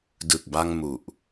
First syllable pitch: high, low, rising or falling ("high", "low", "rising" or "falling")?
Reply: low